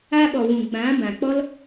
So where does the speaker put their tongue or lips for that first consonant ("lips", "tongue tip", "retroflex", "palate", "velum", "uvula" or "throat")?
lips